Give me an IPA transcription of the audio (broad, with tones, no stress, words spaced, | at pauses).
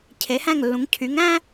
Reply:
cʰe˩˥hæ̃˥˩ŋlːũ˩˥ŋ cʰy˩˥ŋæ̃˥